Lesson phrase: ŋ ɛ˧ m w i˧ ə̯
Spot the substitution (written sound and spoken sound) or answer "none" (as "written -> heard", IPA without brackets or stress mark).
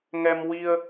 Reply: none